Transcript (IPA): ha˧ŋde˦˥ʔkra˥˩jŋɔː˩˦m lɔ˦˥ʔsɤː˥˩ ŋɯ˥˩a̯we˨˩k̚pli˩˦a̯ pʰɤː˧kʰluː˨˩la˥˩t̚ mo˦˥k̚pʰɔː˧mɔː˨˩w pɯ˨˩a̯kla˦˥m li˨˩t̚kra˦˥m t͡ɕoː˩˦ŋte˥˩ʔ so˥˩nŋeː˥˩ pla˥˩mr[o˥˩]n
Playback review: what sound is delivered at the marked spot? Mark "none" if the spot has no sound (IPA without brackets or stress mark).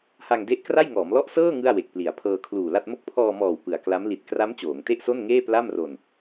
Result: o˧